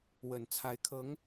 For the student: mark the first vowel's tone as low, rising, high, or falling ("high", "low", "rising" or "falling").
low